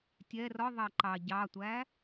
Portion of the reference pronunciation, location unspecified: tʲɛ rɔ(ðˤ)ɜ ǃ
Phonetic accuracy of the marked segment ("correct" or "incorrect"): correct